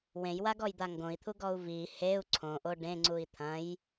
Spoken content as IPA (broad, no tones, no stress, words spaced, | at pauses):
wẽjwaɡɔjd̪a ŋɡõi̯t̪ʰuɡɔu̯ vi heu̯ ǀʰõʔo ɖẽŋ͡ǀui̯ t̪ʰɐ̃j